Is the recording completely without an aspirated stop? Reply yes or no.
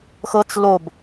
yes